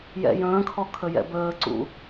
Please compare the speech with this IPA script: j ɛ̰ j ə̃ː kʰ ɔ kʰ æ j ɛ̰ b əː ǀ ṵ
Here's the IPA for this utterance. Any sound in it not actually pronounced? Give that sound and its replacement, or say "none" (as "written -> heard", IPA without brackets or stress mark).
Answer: æ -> ə